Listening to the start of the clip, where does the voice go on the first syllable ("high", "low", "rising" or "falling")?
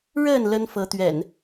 falling